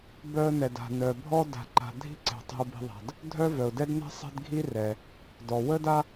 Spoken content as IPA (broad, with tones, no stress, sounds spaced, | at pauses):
b œ˦ ə̯ n ɛ˨ d a̤˨ n œ˨ bʱ ɔ˥ d a̤˨ ǃ a̤˨ dʱ i̤˥ ǀ ɛ̤˩ tˤ i̤˨ ʊ̯ b i̤˨ ðˤ a̤˩ d | dʱ œ˥ v œ˩ ʊ̯ d ɛ˥ d n ɛ̤˥ sˤ ɛ̤˥ d ɡʱ i˥ r ɛ˩ | d ɔ˩ w ə˥ d a˥